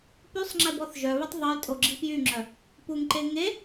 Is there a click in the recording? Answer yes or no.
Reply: yes